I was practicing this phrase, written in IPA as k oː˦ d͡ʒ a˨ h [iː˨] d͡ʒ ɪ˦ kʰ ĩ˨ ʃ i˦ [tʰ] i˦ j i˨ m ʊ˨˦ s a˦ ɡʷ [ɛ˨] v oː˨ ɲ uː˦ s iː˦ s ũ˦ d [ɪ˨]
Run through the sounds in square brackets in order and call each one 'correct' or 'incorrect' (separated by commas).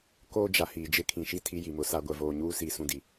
correct, correct, correct, incorrect